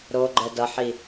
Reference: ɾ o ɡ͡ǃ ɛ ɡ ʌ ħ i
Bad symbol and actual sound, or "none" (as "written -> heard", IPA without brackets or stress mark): ɡ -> d